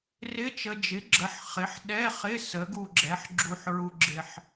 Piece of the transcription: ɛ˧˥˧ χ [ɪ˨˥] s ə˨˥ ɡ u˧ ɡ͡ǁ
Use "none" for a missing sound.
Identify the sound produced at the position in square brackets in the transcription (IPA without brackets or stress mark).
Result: ɪ˧˥˧